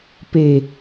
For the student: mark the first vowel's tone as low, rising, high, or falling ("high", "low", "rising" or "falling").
high